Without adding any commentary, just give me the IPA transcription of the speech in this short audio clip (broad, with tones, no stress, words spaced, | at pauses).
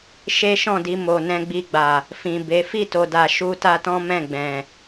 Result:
ʃe˦ʃɔ̃˦˨di˧ mo˨nɛ̃˧ɡ͡bi˧ɡ͡ba˨ | fĩ˨be˨˦ fi˦˨to˨da˨ ʃu˧ta˧tɔ̃˦ mɛ̃˦˨ɡ͡bɛ̃˨